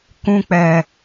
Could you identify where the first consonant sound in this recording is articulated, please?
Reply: velar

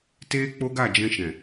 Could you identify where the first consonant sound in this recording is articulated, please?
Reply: alveolar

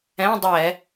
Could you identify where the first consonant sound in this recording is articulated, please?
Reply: alveolar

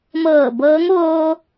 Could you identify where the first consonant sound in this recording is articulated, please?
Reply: labial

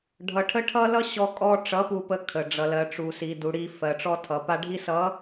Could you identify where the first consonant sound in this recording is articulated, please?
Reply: retroflex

